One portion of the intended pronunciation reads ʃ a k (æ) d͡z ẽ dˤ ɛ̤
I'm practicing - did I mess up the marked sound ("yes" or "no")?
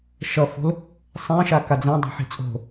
yes